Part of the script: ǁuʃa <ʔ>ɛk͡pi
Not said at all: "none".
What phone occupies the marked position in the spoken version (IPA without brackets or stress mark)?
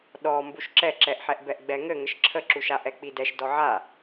ʔ